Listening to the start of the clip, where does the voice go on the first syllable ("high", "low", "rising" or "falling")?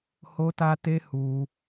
high